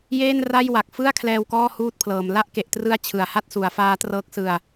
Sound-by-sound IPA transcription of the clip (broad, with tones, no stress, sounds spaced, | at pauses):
j eː˥˩ n r a˥˩ j w a˨˩ k̚ f ɯ˥˩ a̯ kʰ l ɛː˧ w k ɔː˥˩ h uː˦˥ t̚ pʰ l ɤː˩˦ m l a˦˥ ʔ k e˨˩ ʔ t r ɯ˦˥ a̯ t͡ɕʰ ɯ˨˩ a̯ h a˥˩ t̚ s u˩˦ a̯ f aː˦˥ t r ɤː˦˥ k̚ s ɯ˧ a̯